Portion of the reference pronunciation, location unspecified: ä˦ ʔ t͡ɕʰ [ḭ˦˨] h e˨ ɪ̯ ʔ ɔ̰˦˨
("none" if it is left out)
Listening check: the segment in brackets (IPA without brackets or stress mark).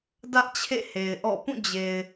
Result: ḛ˦˨